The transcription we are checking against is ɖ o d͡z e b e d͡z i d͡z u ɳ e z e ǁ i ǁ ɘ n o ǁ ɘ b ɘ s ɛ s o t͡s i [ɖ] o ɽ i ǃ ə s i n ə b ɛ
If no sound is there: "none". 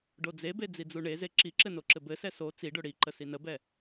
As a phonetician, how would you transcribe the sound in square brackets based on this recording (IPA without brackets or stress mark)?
ɖ